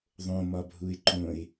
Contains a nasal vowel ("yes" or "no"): yes